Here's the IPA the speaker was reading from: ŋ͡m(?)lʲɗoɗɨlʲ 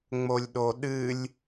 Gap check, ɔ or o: o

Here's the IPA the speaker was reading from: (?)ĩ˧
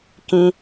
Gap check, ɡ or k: k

